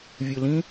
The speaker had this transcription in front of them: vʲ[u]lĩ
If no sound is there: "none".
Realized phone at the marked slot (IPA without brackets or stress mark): ɯ